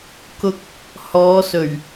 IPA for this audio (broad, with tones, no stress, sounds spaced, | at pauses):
k ʊ˧ k̚ | h ɔː˨˧ s ɵ˨˩ ɥ